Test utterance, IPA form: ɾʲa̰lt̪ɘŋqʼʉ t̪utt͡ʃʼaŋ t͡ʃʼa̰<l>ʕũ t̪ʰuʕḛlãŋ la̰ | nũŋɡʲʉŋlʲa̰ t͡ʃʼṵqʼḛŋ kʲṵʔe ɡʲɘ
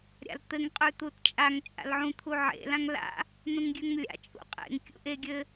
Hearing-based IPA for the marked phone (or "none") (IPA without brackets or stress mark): l